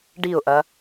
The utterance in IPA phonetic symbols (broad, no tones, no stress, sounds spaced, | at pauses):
ɖ i ʊ̯ ʔ ɐ